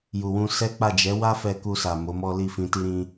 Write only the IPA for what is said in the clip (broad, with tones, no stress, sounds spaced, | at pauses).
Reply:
j u˨ w ũ˧ s ɛ˦ k͡p a˦˨ d͡ʒ ɛ˨˦ w a˦ f ɛ˧ k u˧ s a˨ m o˨˦ m ɔ˦ l i˦˨ f ĩ˧ t i˦ ɾ ĩ˦